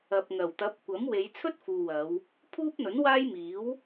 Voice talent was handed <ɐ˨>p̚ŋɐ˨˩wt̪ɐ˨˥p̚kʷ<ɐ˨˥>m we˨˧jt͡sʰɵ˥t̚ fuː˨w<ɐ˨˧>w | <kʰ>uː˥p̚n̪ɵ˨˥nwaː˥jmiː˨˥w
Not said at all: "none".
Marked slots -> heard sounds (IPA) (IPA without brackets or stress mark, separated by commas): ɐ˨, ɐ˨˥, ɐ˨˧, pʰ